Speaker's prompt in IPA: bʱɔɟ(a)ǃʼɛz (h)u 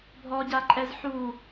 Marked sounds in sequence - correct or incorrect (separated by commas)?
correct, incorrect